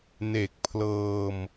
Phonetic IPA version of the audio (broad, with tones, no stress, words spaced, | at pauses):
ne˨˩k̚pʰlɤː˧m